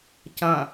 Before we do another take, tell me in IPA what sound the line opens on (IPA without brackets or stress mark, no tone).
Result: c